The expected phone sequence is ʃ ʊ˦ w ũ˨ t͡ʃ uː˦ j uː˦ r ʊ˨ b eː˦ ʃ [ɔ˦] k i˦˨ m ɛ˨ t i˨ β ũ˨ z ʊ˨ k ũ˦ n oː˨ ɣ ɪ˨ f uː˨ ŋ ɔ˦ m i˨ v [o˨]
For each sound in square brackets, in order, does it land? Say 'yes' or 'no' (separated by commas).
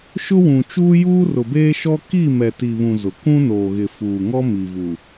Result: yes, no